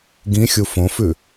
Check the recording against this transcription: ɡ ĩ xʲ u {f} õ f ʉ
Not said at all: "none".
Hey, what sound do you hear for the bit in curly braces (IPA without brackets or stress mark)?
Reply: f